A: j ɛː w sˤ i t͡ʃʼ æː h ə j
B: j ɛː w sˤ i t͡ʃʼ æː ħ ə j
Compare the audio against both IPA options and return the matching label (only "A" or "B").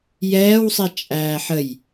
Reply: B